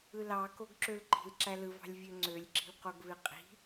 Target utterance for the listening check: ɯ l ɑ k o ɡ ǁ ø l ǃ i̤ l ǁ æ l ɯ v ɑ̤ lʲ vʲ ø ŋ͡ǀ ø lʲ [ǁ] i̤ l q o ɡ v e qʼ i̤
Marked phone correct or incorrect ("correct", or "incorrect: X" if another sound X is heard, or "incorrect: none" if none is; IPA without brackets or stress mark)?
correct